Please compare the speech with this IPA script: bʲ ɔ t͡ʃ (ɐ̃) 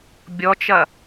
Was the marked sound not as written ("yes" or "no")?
yes